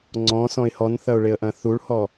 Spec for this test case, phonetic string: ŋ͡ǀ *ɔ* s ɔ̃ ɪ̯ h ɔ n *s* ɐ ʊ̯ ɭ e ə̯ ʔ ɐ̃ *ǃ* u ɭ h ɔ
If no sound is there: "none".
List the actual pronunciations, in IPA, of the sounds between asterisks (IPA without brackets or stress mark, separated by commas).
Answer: ɔ̃, θ, θ